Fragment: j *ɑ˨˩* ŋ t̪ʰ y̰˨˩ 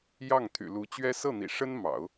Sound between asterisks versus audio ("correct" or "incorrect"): incorrect